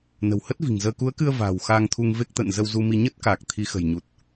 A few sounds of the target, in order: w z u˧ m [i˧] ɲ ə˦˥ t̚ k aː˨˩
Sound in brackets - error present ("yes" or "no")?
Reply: no